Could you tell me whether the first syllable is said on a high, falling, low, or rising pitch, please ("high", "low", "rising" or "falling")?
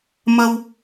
low